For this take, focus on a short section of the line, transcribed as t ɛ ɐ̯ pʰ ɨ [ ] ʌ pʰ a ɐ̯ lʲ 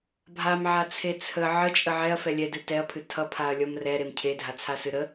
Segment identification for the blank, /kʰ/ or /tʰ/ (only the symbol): tʰ